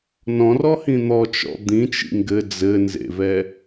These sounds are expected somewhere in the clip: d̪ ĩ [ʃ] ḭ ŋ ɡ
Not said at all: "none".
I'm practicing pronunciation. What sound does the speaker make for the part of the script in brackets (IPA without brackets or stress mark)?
t͡ʃ